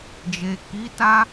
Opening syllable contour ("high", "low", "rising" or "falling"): low